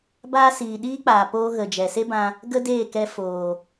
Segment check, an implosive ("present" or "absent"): present